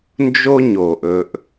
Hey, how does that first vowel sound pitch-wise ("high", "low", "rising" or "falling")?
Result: high